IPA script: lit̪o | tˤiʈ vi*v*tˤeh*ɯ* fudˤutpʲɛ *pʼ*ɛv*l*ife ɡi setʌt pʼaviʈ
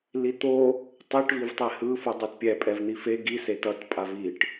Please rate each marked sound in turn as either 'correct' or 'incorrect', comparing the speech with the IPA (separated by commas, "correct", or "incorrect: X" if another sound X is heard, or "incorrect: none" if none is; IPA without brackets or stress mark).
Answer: correct, correct, correct, incorrect: n̪